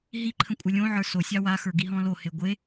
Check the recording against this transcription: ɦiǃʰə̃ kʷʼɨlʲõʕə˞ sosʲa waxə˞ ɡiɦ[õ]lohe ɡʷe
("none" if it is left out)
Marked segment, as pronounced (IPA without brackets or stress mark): ɔ̃